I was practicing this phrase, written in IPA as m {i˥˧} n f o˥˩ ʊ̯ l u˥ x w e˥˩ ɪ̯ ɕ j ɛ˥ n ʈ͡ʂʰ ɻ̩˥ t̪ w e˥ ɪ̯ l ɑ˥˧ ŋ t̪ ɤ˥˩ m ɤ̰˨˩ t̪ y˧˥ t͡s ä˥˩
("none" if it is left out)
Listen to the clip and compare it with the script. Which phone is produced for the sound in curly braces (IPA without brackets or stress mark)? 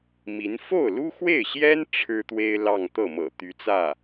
i˧˥